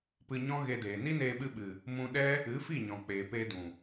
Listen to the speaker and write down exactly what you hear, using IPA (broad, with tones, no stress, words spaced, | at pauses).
pɨ˧ɲɔ̃˦ɣe˧deː˨ ni˦neː˧ɓɨ˧ɓɨ˨ | mũ˧ ɗɛ˦ | ɨ˨˦fi˦˨ɲɔ̃˨ k͡peː˨peː˧dũ˨